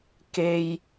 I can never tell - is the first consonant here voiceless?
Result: yes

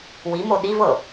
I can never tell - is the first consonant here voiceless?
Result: no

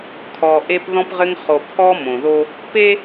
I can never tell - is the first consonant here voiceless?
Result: yes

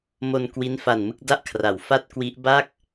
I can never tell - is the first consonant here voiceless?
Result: no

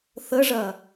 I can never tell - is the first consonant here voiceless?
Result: yes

